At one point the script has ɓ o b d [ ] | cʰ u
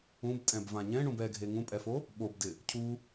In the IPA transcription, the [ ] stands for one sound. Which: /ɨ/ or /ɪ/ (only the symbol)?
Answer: ɪ